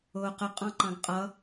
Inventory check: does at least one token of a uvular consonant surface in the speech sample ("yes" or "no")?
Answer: yes